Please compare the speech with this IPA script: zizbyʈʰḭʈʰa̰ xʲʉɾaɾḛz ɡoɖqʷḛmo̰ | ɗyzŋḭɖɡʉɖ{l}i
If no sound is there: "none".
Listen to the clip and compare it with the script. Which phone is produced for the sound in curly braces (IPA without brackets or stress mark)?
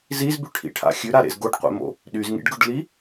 l